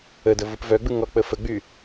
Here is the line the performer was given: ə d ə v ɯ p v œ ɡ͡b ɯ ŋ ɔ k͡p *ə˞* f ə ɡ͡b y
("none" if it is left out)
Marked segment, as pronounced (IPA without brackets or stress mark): ə